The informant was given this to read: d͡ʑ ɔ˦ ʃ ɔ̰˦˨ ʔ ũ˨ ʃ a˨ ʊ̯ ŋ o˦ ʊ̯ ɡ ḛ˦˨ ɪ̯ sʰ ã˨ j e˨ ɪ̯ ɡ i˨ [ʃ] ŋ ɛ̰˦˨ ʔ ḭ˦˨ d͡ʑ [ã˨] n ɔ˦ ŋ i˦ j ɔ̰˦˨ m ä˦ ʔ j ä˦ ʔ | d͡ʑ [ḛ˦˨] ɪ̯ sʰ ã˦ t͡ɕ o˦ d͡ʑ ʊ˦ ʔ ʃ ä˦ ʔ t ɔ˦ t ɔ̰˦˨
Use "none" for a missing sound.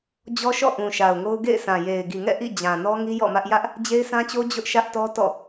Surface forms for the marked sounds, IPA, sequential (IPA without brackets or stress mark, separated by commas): none, ã˨, e˦